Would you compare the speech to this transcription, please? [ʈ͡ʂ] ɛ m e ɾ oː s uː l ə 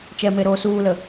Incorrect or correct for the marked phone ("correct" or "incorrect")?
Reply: incorrect